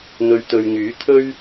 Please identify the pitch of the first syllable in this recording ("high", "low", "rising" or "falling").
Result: low